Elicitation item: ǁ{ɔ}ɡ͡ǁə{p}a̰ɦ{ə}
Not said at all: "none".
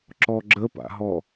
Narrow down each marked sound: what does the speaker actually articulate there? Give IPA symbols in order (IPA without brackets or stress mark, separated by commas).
ɔ, p, ɔ